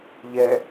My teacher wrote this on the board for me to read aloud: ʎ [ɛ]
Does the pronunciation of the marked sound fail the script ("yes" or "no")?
no